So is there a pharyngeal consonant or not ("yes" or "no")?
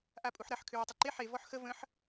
yes